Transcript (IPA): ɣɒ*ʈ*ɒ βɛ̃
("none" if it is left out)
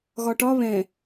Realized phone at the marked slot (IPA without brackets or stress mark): ʈ